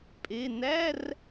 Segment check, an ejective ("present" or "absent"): present